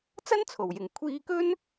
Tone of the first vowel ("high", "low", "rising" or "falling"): high